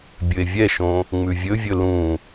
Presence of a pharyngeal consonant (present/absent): absent